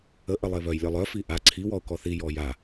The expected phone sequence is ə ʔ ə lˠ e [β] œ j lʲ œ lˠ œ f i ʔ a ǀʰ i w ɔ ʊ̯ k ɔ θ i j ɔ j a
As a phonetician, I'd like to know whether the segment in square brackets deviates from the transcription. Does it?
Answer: no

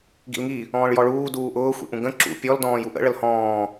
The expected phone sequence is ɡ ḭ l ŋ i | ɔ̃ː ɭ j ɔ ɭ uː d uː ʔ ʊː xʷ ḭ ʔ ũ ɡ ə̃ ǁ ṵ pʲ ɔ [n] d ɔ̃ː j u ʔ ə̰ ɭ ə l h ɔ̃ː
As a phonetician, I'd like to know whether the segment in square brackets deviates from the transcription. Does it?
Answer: yes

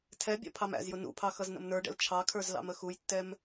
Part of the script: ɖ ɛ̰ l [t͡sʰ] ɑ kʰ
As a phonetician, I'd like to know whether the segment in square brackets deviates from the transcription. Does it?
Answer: yes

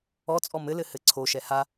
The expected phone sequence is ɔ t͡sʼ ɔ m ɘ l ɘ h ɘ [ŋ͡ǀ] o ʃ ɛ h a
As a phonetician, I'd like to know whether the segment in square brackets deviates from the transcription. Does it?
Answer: yes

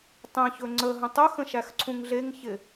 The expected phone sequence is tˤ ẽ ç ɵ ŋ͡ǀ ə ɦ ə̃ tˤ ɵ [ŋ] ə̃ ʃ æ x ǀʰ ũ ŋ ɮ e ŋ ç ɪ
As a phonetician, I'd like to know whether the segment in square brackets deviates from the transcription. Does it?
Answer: yes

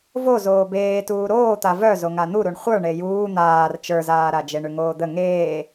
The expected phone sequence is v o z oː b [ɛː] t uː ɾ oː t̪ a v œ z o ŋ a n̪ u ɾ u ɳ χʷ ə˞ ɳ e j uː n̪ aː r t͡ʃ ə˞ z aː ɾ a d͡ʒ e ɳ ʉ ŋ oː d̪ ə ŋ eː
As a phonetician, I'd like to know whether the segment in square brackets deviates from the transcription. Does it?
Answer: yes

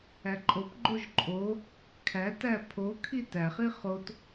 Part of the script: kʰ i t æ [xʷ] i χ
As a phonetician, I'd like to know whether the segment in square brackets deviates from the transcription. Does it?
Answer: yes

